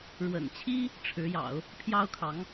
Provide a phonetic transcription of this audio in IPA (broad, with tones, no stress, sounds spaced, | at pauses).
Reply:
ɻ w ə̰˨˩ n t͡ɕʰ i˥ | ʈ͡ʂʰ ɻ̩˧˥ j ɑ̰˨˩˦ ʊ̯ | pʰ j ɑ˥ ʊ̯ kʰ ɑ˧˥ ŋ